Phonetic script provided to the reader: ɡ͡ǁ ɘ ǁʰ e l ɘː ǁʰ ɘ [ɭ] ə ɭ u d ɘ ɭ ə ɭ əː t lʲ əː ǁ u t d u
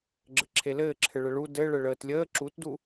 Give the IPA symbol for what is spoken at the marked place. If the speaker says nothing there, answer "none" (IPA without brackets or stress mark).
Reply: ɭ